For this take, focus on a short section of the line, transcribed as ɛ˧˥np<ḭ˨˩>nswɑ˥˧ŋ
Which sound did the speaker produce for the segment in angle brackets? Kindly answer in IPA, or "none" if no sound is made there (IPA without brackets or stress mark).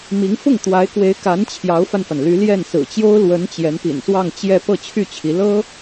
ḭ˨˩